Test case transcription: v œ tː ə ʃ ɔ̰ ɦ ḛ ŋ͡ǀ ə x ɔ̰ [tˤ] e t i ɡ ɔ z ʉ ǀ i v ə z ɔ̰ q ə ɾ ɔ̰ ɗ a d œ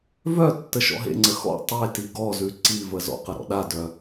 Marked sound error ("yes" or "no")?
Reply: no